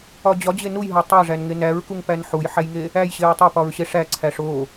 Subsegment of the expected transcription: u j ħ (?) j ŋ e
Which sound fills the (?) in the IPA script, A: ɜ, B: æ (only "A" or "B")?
B